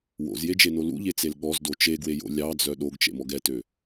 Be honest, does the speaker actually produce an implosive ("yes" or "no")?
yes